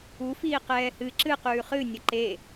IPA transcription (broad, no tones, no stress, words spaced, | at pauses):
ufiːqɛː hɨ ǁɨqʉː χɨnʲə ǃe